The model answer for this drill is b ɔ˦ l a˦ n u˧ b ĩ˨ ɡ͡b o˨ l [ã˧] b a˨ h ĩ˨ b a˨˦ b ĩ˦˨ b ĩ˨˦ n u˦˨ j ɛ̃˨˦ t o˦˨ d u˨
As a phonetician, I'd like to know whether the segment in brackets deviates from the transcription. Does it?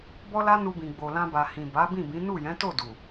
no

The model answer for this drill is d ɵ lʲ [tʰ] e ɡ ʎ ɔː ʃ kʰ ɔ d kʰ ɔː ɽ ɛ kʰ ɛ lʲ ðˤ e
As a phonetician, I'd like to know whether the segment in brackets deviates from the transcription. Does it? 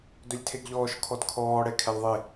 no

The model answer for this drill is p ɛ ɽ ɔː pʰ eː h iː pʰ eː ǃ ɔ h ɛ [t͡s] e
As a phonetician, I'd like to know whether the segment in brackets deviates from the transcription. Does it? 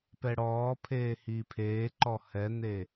yes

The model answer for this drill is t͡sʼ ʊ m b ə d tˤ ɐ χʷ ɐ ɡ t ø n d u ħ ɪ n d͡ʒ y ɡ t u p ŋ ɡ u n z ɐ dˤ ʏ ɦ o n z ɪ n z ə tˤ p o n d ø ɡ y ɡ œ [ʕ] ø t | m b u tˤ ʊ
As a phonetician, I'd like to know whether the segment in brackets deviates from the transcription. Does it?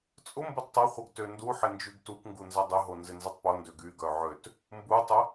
no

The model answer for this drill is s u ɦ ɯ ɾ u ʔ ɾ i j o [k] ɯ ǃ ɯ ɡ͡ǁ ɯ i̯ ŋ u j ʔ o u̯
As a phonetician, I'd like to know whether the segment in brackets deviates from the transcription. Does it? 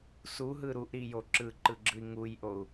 yes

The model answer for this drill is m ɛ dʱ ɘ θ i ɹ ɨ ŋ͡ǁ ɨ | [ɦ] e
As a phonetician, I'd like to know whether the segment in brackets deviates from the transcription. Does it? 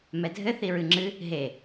no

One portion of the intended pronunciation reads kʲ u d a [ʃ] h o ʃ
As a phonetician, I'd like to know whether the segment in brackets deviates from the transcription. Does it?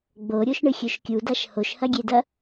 no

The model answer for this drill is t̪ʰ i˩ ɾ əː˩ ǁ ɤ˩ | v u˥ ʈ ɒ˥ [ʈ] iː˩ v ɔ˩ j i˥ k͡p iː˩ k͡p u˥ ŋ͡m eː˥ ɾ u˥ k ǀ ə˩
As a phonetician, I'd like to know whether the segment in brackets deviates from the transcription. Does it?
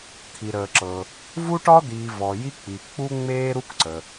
yes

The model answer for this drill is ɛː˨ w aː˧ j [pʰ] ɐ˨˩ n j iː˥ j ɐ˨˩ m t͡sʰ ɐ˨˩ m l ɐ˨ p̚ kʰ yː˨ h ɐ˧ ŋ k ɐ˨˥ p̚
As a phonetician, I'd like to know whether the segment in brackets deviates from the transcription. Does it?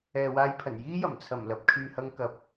no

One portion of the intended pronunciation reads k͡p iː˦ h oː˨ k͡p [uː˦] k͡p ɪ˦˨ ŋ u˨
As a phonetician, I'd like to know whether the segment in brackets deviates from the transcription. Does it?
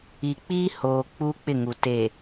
no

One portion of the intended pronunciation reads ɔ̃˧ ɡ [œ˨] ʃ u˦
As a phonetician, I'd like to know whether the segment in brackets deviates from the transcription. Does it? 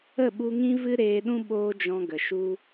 yes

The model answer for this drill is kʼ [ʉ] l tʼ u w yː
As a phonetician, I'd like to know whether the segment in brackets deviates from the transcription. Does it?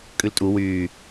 no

